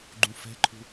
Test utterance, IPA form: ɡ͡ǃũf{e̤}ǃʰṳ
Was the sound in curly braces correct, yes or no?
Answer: no